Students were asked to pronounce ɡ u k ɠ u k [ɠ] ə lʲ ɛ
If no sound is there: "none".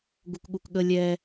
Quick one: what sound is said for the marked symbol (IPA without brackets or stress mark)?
ɠ